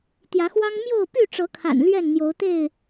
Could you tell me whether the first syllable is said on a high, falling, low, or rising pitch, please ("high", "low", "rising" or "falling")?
rising